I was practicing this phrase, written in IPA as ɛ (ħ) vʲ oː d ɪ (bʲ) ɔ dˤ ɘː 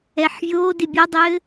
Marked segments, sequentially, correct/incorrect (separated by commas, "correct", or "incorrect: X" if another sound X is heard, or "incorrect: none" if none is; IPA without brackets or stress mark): correct, correct